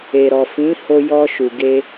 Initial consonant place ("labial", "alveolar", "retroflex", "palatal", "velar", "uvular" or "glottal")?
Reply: alveolar